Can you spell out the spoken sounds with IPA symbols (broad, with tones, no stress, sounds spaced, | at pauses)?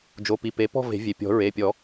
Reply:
d͡ʒ o˩˧˩ p i˩˧˩ p e˩˥ p ɔ̤˦˨ v e̤˨˩˦ vʲ e˩ pʲ ɔ̤˨˩˦ ɹ e˩˧˩ pʲ ɔ˨˩˦